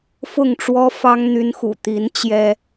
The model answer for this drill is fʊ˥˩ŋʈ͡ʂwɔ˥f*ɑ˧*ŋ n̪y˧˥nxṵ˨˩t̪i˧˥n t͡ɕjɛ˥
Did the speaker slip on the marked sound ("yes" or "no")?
yes